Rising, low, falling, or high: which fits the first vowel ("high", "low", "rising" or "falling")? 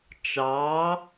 rising